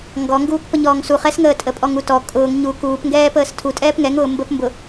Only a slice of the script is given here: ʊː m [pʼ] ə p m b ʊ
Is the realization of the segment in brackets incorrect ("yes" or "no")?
yes